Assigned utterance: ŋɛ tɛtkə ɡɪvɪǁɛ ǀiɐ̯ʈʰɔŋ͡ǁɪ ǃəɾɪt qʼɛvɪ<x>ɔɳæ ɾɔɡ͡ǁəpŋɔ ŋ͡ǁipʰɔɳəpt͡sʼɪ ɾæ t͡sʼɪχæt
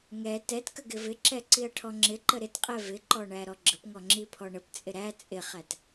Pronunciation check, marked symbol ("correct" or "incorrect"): incorrect